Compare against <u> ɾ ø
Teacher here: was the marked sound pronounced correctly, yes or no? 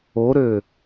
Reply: no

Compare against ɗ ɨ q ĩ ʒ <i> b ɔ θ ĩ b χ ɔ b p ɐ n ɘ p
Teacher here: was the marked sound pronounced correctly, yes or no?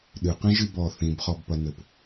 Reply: no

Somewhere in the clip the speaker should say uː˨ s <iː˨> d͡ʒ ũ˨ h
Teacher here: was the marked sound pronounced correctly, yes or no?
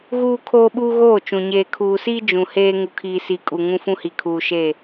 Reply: no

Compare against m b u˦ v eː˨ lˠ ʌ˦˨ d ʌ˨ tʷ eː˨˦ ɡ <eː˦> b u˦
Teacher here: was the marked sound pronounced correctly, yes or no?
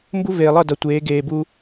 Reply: no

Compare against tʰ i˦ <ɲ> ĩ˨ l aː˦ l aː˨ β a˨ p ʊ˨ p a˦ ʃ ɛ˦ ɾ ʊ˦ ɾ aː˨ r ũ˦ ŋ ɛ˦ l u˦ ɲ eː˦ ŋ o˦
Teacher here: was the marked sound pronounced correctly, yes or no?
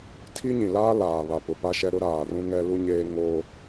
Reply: yes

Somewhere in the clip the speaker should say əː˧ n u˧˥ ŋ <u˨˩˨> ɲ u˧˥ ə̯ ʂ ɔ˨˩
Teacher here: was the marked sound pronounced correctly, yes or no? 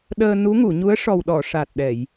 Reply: yes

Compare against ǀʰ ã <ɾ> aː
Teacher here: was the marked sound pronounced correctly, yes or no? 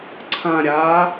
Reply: no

